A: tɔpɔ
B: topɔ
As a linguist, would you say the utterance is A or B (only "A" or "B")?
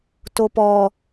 B